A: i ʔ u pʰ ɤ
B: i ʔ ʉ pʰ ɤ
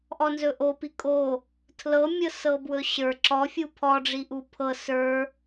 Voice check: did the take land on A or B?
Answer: A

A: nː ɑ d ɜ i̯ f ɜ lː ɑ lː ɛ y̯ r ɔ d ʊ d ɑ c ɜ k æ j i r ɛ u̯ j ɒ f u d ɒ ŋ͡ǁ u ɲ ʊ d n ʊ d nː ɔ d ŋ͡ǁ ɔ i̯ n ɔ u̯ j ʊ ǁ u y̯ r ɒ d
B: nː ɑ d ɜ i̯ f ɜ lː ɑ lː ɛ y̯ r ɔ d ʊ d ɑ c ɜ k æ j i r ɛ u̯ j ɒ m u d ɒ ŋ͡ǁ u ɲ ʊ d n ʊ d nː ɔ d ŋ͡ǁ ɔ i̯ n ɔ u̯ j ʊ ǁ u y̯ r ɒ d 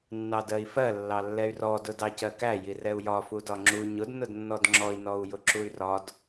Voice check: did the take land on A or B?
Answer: A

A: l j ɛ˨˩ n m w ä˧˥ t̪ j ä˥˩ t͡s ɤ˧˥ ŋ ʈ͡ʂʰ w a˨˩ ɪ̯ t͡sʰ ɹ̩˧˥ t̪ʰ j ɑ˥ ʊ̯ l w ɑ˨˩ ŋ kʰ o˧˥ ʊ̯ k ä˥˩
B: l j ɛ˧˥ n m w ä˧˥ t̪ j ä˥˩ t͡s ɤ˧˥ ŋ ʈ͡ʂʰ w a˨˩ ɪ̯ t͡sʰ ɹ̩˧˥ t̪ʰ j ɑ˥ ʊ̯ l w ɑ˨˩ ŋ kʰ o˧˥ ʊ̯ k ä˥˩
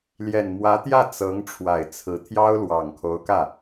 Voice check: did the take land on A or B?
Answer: A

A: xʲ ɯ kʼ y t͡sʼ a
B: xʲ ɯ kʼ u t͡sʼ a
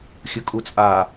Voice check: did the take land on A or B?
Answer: B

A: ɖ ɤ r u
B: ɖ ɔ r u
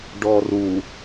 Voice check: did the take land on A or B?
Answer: B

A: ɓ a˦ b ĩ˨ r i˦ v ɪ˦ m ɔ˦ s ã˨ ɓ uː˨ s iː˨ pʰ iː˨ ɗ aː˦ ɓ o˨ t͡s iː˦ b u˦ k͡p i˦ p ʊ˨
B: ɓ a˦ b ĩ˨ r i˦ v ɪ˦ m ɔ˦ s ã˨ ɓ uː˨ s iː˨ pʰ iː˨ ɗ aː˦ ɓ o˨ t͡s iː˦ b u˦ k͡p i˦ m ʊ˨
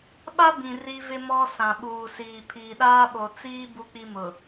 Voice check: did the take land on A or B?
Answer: B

